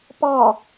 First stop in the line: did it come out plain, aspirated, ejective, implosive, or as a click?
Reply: plain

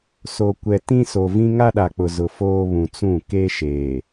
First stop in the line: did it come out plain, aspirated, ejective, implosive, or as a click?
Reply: plain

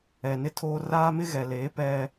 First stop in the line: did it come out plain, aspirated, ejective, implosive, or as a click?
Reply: aspirated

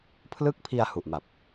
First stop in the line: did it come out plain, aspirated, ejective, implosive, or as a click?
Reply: aspirated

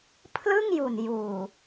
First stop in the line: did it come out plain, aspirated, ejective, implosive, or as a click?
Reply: aspirated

